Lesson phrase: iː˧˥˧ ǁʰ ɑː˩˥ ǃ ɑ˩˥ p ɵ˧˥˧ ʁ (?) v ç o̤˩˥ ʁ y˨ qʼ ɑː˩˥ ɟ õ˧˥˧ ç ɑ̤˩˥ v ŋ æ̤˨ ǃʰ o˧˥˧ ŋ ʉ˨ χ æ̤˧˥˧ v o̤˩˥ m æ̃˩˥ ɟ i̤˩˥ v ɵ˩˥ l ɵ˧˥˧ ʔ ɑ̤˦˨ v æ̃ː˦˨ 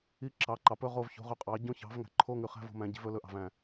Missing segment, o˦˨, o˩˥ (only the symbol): o˦˨